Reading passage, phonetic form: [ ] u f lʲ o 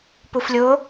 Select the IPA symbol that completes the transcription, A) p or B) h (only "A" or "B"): A